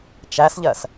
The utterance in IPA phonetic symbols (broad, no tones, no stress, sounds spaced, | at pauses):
t͡ʃ æ s ʎ ɜ s